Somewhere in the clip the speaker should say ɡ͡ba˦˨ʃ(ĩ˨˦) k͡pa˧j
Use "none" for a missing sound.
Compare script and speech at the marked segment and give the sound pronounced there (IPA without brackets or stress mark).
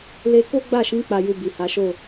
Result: ĩ˨˦